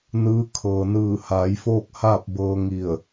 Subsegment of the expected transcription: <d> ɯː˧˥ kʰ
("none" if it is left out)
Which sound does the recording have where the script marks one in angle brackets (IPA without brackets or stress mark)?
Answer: n